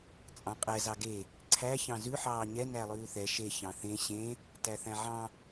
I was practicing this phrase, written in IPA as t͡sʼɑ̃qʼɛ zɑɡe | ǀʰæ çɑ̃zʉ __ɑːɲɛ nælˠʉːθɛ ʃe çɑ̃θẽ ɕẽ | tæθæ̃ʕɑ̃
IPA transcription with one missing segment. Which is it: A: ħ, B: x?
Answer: A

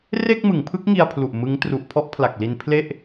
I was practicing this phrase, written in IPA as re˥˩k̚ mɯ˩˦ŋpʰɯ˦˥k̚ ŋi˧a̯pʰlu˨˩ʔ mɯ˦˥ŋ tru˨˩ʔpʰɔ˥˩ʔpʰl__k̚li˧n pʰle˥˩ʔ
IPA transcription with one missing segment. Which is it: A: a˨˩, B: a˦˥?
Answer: A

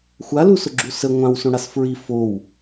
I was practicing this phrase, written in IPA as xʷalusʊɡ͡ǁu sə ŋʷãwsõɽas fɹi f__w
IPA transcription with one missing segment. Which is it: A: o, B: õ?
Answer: A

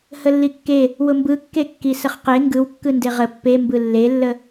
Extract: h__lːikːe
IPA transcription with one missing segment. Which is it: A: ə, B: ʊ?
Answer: A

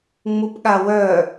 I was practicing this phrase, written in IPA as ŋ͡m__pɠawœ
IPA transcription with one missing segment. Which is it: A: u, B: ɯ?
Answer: A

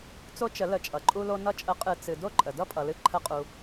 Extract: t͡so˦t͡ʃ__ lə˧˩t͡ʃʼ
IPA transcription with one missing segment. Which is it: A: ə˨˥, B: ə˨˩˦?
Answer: B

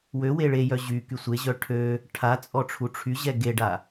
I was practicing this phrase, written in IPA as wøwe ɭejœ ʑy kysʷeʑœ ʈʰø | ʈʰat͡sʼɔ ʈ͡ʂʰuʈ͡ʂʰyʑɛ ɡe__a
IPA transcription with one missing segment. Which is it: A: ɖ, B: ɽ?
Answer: A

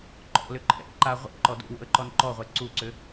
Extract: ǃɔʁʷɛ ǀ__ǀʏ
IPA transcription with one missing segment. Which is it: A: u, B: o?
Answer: A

